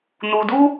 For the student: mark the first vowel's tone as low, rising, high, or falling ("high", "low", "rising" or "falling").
high